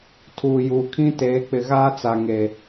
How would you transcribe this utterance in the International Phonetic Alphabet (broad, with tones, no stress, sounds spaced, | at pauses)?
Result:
tʰ uː˨ j uː˨ kʰ ĩ˦ t eː˨˦ k͡p ɪ˨ ɣ aː˦ t͡s a˨ ŋ e˨